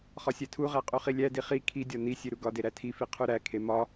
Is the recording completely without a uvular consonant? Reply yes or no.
no